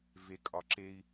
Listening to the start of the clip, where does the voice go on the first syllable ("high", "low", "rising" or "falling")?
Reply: rising